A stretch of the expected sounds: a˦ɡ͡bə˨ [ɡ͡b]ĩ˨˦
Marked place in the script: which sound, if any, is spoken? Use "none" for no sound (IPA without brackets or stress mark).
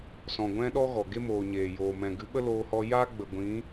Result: ɡʷ